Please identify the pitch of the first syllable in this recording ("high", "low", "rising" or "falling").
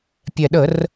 low